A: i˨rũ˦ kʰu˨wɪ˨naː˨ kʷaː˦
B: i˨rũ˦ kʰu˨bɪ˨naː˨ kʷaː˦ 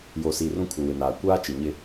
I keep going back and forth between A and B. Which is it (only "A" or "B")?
A